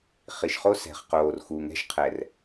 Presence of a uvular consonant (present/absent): present